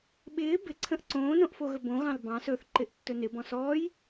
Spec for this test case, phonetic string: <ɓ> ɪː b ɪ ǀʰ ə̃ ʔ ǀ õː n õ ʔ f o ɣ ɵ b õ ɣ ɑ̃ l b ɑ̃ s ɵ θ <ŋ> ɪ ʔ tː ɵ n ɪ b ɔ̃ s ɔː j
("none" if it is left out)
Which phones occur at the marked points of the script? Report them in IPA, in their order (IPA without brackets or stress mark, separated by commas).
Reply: ɓ, ǃ